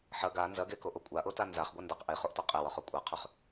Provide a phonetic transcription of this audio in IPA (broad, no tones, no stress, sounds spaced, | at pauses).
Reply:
ħ ɐ ɡ a n z ɐ ɡ e k o ʔ o kʷʼ a ʔ o t a n z a χ ɡʷ ɐ n d a q ʔ e χ o ʔ t ɒ qʼ e w ɒ χ o kʷʼ a qʰ ʉ χ